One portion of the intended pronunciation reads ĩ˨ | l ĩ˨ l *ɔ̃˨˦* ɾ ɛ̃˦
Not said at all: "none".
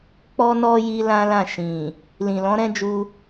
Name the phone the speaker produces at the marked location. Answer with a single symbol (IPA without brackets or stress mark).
ɔ̃˨˦